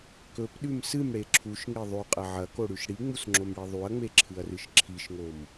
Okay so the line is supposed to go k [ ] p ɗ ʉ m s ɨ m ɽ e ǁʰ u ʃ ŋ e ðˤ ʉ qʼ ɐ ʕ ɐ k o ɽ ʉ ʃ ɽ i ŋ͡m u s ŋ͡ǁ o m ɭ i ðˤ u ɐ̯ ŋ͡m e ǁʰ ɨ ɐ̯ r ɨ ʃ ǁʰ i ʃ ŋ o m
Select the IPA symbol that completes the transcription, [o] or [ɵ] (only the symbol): ɵ